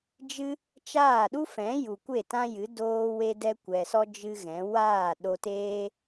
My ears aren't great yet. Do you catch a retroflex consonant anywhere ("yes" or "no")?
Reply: no